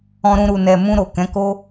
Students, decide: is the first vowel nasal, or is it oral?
nasal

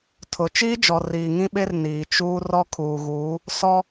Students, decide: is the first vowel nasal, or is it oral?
oral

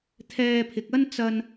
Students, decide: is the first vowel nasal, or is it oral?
oral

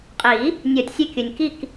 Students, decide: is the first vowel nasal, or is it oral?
oral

